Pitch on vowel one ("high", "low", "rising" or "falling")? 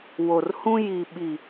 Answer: low